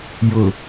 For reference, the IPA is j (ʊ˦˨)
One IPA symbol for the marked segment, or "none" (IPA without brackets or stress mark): ʊ˨